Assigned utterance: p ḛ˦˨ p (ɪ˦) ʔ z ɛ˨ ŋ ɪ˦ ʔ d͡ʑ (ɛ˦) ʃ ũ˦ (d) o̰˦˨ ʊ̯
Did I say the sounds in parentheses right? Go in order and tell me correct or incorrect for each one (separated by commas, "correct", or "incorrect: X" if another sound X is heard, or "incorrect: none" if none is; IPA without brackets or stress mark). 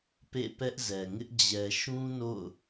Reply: incorrect: ɛ˦, incorrect: ɛ˨, incorrect: n